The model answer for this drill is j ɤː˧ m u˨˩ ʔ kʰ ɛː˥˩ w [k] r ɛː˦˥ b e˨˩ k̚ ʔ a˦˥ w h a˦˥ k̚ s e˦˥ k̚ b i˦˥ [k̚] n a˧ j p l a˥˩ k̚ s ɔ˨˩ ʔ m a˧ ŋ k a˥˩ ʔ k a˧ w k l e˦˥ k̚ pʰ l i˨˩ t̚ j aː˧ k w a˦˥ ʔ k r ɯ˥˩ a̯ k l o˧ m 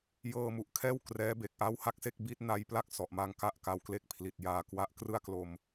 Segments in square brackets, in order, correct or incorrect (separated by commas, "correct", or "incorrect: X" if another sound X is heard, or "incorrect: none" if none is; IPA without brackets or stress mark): correct, incorrect: t̚